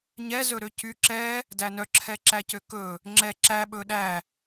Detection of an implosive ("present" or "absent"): present